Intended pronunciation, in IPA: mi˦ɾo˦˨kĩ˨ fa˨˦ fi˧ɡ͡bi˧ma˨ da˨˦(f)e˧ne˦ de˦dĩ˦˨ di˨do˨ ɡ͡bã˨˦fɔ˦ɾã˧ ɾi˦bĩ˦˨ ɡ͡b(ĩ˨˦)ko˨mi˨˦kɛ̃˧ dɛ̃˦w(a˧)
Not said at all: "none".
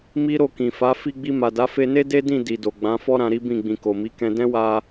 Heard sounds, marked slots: f, ĩ˨, a˧

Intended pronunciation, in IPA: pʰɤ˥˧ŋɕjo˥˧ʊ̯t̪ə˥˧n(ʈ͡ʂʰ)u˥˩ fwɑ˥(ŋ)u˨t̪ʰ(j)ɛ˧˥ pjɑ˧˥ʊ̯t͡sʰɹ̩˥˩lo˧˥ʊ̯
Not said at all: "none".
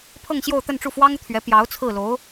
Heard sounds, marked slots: ʈ͡ʂ, ŋ, ɥ

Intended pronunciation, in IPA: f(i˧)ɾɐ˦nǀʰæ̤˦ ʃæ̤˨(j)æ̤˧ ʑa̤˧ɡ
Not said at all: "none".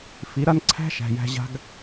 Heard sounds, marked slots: i˨˦, j

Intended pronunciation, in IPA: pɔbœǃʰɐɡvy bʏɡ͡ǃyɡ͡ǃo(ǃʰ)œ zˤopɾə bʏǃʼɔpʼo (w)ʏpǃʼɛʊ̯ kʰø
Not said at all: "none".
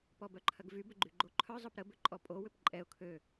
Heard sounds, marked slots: ǃʰ, w

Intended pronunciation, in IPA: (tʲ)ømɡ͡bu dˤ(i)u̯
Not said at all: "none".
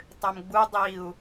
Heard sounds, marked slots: tˤ, i

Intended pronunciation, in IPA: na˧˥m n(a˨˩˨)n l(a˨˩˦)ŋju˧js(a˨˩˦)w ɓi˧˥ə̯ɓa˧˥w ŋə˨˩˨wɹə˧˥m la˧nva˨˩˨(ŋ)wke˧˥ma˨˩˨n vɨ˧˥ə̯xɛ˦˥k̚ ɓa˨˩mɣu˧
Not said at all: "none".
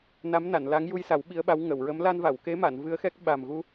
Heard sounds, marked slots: a˨˩˨, a˧˥, a˨˩˦, none

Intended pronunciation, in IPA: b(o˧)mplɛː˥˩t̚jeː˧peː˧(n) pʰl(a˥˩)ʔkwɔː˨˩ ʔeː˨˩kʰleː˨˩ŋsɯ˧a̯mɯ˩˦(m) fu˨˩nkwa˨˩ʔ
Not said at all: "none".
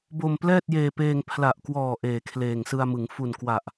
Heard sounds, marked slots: o˧, ŋ, a˨˩, ŋ

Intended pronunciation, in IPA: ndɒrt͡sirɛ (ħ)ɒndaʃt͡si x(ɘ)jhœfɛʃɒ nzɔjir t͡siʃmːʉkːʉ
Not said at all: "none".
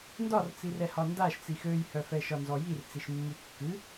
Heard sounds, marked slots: h, ø

